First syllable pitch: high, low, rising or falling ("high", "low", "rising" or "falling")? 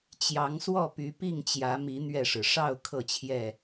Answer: rising